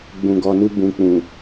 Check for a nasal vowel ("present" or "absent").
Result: present